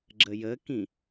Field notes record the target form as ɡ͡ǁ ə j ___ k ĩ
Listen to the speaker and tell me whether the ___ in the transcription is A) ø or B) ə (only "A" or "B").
B